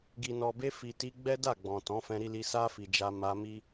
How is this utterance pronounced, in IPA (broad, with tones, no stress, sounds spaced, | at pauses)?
ɡ i˨ n ɔ˨ b e˧ f i˨ t i˧ ɡ͡b ɛ˦ d a˦˨ ɡ͡b ɔ̃˨ t ɔ̃˨˦ f ɛ̃˧ ɾ i˧ l i˧ s a˧ f i˨ d͡ʒ a˧ m a˧ m i˦